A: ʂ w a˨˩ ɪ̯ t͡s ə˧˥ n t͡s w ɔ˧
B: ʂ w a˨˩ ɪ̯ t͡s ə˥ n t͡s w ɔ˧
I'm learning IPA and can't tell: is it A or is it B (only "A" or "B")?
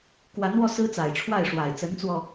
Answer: A